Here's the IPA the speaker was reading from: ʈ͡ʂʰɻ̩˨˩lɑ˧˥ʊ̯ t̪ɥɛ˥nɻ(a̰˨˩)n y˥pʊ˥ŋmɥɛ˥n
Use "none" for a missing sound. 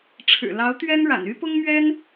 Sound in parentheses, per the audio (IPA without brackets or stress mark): a̰˨˩